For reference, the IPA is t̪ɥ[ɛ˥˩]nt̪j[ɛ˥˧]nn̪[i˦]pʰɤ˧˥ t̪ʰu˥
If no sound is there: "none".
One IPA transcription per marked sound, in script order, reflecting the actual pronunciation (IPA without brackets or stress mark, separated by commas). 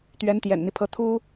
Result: ɛ˧˥, ɛ̰˨˩, i˦